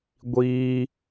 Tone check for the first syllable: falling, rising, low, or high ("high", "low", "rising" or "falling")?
high